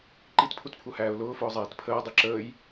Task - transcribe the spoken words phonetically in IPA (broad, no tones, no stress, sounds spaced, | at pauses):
ǃ i t pʰ u t pʰ u h æː ʊ̯ l ʊː f ʊː zˤ ɛː t pʰ əː dˤ i ǁ əː j